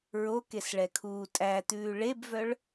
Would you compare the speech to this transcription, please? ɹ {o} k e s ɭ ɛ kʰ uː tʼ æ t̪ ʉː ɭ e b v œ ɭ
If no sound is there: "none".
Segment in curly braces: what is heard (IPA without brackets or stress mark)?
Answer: o